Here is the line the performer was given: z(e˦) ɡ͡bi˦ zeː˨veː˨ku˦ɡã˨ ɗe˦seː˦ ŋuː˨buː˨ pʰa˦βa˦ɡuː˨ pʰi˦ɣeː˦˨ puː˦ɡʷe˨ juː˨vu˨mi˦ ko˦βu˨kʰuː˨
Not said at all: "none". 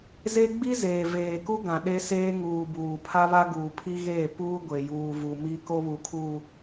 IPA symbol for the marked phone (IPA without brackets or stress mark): e˦